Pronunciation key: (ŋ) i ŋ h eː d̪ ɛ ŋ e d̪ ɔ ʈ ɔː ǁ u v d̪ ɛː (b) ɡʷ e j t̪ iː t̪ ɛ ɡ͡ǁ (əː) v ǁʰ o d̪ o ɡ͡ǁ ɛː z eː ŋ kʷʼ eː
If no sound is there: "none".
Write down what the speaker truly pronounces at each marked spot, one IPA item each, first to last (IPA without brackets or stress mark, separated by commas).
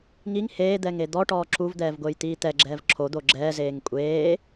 ŋ, v, ɛː